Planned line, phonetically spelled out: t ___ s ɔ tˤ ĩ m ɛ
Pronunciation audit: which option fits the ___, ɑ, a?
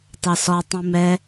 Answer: ɑ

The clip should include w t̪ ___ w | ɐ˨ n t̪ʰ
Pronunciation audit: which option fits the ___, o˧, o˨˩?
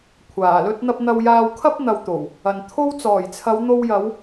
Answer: o˨˩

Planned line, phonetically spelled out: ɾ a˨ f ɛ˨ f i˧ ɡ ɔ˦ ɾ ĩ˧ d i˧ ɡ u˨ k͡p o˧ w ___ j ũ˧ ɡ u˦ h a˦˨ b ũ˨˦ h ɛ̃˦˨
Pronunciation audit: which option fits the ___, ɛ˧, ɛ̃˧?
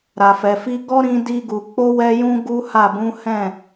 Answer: ɛ˧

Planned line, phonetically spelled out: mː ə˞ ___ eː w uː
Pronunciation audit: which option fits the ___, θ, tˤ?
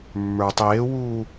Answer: tˤ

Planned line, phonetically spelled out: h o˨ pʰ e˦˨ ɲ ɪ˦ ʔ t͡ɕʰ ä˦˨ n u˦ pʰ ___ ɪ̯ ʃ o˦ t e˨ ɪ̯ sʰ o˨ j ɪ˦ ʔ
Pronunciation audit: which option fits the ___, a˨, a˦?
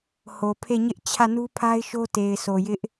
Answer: a˦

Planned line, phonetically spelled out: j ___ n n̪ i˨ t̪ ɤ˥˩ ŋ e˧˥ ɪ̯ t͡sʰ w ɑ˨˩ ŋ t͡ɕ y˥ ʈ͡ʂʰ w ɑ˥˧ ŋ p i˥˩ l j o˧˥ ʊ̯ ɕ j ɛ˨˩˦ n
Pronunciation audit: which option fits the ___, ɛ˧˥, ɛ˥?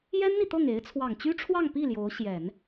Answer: ɛ˥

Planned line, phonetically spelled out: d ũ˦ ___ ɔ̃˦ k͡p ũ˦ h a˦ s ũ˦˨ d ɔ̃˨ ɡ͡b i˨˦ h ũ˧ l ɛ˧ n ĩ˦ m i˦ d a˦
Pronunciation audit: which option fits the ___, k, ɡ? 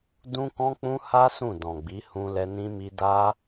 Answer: k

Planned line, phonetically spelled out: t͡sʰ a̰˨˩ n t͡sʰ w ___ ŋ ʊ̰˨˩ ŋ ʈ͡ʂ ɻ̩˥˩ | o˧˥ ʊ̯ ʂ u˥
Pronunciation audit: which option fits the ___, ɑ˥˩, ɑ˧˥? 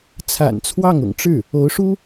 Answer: ɑ˥˩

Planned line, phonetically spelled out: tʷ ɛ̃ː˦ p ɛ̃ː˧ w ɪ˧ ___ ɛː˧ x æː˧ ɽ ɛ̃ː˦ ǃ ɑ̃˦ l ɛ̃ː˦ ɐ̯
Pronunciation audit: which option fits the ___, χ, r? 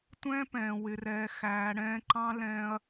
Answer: r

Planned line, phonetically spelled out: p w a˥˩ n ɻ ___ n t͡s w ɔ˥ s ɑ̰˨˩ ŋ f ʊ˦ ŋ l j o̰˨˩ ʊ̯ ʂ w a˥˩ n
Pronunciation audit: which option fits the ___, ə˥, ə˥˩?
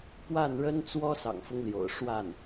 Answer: ə˥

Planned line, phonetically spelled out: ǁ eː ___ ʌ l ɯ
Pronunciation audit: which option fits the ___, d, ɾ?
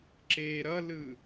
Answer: ɾ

